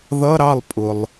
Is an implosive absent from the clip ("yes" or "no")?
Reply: yes